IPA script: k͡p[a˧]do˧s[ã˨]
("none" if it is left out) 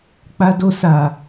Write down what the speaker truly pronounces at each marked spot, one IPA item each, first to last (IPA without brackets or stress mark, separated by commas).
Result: a˧, a˨